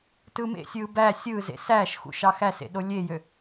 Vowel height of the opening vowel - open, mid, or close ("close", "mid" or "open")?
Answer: close